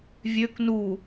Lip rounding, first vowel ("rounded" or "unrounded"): rounded